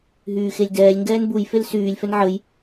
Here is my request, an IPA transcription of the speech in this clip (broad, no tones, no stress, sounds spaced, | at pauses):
ɦ yː x e lʲ d ɛː lʲ ŋ ɡ ɛː n b u j f e l s yː lʲ f ɛ n ʕ ə j